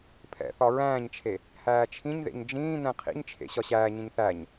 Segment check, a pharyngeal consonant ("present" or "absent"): absent